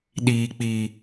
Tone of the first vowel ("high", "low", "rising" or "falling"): low